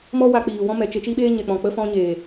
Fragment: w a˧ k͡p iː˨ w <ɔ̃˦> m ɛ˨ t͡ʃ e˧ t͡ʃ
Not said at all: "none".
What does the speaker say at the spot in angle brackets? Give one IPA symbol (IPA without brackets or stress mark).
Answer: ɔ̃˦